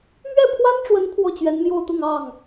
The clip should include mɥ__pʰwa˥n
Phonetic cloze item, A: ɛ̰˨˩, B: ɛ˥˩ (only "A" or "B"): B